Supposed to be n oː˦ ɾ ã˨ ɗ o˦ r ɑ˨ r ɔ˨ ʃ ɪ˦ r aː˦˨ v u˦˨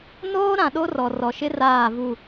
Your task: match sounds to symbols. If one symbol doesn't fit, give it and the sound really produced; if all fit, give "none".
ɑ˨ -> ɔ˨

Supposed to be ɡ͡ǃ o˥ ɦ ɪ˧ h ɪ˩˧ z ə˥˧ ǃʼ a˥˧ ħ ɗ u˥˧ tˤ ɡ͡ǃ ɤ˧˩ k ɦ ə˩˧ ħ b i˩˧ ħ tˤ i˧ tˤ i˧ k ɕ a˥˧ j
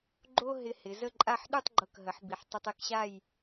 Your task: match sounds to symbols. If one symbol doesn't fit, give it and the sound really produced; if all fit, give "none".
none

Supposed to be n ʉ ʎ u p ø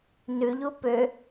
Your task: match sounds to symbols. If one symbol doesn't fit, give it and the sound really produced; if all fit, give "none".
none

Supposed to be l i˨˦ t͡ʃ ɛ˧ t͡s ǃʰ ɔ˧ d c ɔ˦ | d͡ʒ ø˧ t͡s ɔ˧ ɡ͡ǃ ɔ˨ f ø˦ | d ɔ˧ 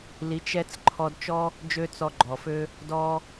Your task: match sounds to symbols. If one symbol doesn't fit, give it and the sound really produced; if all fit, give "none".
c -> t͡ʃ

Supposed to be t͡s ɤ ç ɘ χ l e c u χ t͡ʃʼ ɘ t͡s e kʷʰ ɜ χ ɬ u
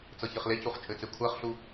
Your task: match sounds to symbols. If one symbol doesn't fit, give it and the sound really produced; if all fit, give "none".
none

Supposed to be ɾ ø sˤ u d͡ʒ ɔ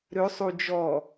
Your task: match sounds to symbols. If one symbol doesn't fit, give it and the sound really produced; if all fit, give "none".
none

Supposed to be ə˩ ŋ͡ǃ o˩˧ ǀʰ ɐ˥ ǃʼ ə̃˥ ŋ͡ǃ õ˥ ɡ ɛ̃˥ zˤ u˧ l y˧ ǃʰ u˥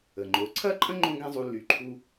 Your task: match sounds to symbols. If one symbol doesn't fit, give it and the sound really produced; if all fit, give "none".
none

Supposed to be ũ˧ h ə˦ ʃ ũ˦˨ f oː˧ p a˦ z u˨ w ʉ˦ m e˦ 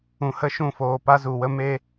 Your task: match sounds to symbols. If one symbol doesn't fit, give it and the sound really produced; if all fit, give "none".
ʉ˦ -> ə˦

